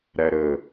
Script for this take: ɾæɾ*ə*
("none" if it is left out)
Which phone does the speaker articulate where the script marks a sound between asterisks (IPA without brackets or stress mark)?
ə